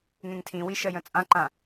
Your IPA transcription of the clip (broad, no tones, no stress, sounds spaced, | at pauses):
ŋ ẽ ŋ tʰ ĩ w i ʃ ɜ j ə̃ t͡sʼ ã ǃ ã